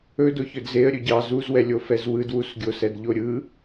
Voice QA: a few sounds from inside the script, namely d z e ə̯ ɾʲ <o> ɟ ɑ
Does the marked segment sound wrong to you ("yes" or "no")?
yes